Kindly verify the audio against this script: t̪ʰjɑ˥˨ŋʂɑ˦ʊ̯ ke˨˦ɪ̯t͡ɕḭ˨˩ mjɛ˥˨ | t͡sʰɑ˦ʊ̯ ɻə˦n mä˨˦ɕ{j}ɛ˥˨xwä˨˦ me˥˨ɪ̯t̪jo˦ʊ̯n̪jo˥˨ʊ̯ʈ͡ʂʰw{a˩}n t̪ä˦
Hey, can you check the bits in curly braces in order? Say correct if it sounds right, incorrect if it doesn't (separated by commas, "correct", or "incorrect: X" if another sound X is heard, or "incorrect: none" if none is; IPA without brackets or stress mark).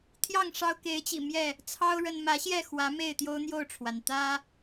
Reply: correct, correct